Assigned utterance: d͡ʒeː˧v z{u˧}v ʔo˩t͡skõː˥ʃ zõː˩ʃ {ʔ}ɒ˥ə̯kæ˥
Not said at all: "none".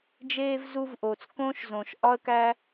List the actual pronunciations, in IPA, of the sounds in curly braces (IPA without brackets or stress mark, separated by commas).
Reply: u˧, ʔ